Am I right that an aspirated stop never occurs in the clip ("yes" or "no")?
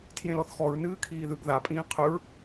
no